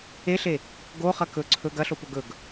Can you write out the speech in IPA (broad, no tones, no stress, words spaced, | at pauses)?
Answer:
eɬe | ɡoχɐ kɵ ǀʰɵɡ ɐɬopɵ ɡɵɡ